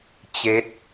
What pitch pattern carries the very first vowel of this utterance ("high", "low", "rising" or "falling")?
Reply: rising